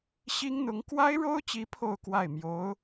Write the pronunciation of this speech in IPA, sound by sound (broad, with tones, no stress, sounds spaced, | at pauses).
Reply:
ɕ i˥ ŋ n̪ ʊ˧˥ ŋ k w a˥ ɪ̯ ɻ o˥ ʊ̯ t͡ɕ i˧˥ pʰ o˥˧ ʊ̯ k w a˥˩ ɪ̯ m j o˧˥ ʊ̯